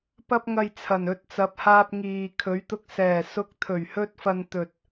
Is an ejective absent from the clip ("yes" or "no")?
yes